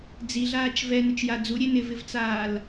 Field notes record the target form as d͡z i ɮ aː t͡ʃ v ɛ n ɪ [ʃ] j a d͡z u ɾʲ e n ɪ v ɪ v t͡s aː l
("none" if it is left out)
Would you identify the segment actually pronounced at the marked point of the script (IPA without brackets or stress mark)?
t͡ʃ